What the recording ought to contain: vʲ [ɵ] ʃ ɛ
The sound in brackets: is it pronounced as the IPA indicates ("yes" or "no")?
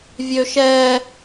no